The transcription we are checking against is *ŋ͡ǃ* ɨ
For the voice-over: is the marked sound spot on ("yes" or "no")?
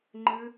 yes